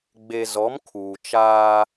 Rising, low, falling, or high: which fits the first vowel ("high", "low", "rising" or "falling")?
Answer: low